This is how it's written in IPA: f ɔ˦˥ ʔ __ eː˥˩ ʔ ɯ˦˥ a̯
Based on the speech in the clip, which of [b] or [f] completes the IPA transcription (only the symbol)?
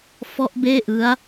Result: b